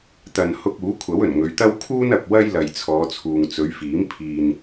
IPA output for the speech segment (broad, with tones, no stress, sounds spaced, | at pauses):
t̪ ɐ˨ n h ʊ˧ k̚ uː˨˥ kʷʰ ɐ˨˥ w ɵ˨˩ n ŋ ɵ˨˧ ɥ t̪ ɐ˥ w kʰ uː˥ n ɐ˨ p̚ w ɐ˥ j l ɐ˨ j t͡sʰ ɔː˨˧ t͡sʰ uː˨ ŋ t͡s ɵ˨˧ ɥ f iː˨˥ m pʰ iː˧ n